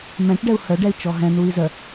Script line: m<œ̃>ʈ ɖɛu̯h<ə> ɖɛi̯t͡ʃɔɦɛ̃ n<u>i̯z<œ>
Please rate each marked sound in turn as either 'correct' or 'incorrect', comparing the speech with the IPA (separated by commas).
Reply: incorrect, incorrect, correct, correct